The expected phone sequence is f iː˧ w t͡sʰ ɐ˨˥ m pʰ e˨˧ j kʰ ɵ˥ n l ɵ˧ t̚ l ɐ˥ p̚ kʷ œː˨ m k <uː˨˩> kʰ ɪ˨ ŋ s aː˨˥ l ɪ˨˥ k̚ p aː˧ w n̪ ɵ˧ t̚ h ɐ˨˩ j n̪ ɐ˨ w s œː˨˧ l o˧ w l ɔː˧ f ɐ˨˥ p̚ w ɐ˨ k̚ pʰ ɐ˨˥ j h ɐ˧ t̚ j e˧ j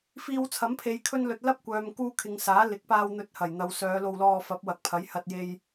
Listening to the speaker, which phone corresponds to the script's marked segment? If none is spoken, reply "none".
uː˧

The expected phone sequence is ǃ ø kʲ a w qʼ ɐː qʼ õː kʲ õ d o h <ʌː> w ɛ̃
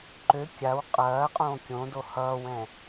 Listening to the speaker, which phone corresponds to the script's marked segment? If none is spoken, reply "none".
ʌː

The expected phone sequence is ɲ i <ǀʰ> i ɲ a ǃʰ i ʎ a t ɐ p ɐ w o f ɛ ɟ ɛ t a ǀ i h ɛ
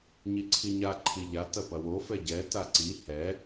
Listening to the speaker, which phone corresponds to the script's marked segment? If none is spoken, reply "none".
ǀʰ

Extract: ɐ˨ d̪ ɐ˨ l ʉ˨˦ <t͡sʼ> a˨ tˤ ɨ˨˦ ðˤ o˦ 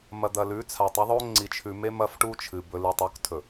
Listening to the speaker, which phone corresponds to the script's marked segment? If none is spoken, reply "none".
t͡sʰ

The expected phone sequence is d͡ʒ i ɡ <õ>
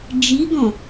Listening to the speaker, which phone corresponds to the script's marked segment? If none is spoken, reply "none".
ɔ̃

